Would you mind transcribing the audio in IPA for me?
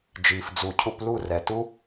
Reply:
d͡ʒiː˨fd͡zu˨cʰu˧plu˦˨ rɛ˨tu˦

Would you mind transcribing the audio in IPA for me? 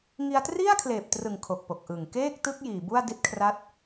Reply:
ŋi˧a̯tri˥˩a̯ kʰleː˨˩p̚trɯ˨˩ŋ kʰo˨˩k̚po˨˩k̚ʔɯ˨˩ŋ keː˥˩k̚ tɯ˦˥k̚ jiː˨˩bu˥˩a̯ di˦˥t̚kʰra˦˥t̚

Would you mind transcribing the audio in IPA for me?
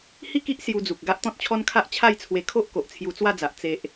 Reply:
hi˥˧ki˦ʔ sju˧d͡zu˨k̚ ɡa˦ʔt̪ɔ̃˦t̚t͡ɕʰɔ˦nkʰa˦ʔ t͡ɕʰa˥˧jt͡sʰwe˧kʰo˦ʔ ko˨ʔt͡sʰju˧t͡swa˥˧d͡za˨ʔ t͡se˨ʔ

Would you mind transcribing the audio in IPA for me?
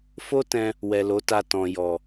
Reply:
fo˦tɛ̃˧ | wɛ˨lo˨˦ta˧ tɔ̃˨jɔ˨

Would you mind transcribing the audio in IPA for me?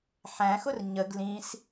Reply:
ħæ̃xʊr ɲəɡ lĩs

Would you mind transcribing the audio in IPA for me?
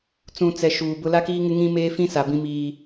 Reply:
t͡sũ˨t͡sɛ˨ ʃuː˨bʊ˦ la˦kiː˦ŋɪ˦ ŋĩ˦meː˦fĩ˦ sa˨bĩ˦miː˦

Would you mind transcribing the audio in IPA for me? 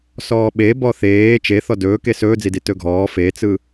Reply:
sɔːɓe bɔθeː t͡ʃeθɔ dɵːke sɵːd͡zidi tɵɡʱɔː fet͡sɯ

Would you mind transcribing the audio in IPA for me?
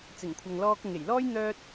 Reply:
t͡sɪ˨˩ŋkʷʰɐ˨ŋlɔː˧k̚ ʊ˨ŋe˨˩jlɔː˥j n̪œː˧t̚

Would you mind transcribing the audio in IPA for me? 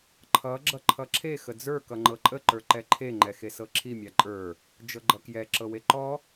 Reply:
ǃʰʌ ɡ͡ǁʌǃʰʌǁʰe xəd͡zə˞ kʌŋ͡ǃɤǃʼə ǃə˞ǃɛǃʰe ŋ͡ǃɛxesɤǁʰi mʲaǃʼə˞ | d͡ʒɤɡ͡ǃʌkjɛ ǁɤweǃɔ

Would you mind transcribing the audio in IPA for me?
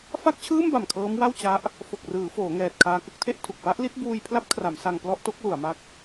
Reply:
fa˥˩k̚t͡ɕʰɯː˥˩mba˨˩m kʰɤː˦˥mwa˥˩wt͡ɕa˦˥ʔ | fo˨˩k̚rɯː˩˦ foː˩˦ŋɛː˨˩t̚ kʰaː˧kɯ˦˥k̚tʰe˥˩ʔtʰu˨˩k̚ pa˥˩ʔli˦˥t̚ buː˧jpʰla˦˥p̚kʰra˩˦m sa˧ŋplɔ˥˩ʔto˥˩k̚ lu˩˦a̯ma˦˥k̚

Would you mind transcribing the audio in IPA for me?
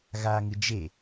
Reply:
ɣa ŋɨ d͡ʒe

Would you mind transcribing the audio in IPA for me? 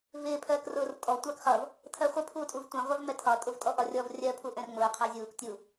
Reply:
vɪː pʰɜːkrʊːrtʼɔ tʷɑkχʌv | tʰɜχʷɪ pʰuːtʼuvtʷɛ̃ ʁʷɜvmɛtʰɒ tʼʊvtʼɔʔɒrʲɔv rʲɜ pʰuʔɛ̃rŋ͡mʊː qʰɑzʲuːk tʲu

